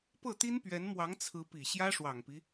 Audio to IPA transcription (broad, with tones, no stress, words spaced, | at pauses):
pɤ˥˩t̪i˥npɥɛ˧˥nmwɑ˧˥ŋ t͡sʰɹ̩˧˥pi˨˩ ɕjä˥ʂwɑ˨˩ŋpi˦